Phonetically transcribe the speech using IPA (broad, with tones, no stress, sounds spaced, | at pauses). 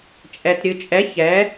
t͡ʃʼ ɛ˨ t ɾʲ ɨ˨ t͡ʃʼ ɛ˨˦ ç ɛ˨˦